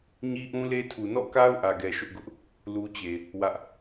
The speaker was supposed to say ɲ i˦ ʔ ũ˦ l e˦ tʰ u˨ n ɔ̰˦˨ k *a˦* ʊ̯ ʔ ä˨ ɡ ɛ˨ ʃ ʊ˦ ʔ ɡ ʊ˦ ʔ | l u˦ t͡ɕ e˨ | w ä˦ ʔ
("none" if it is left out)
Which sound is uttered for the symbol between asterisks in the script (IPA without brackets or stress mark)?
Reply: a˦